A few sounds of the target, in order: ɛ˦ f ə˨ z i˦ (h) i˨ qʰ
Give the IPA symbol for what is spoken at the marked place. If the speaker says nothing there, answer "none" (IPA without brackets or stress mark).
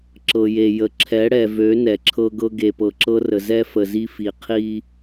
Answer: f